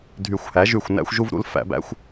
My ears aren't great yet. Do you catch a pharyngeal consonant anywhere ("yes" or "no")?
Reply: no